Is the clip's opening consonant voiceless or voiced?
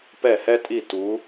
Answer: voiceless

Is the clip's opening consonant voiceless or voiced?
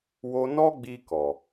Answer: voiced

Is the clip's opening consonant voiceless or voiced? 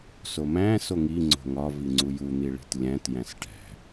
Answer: voiceless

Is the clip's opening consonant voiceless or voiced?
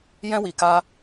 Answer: voiced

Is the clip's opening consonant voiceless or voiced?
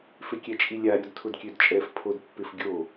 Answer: voiceless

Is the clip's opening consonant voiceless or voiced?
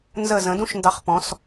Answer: voiced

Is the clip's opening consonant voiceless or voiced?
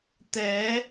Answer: voiceless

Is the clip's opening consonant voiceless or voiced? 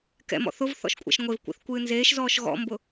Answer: voiceless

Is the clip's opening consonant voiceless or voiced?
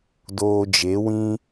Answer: voiced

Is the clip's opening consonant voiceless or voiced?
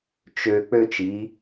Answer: voiceless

